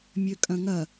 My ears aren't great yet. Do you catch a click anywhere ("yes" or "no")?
no